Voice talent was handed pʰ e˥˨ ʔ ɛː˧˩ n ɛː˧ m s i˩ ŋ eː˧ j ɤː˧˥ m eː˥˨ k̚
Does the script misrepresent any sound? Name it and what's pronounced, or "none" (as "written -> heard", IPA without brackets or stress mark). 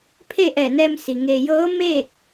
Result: none